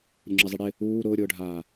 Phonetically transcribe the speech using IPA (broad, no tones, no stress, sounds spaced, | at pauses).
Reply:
ɾʲ ʊ ŋ͡ǁ e zˤ i ɽ ɪ | uː ɾ ʊː ɾʲ ʊː ɖʱ aː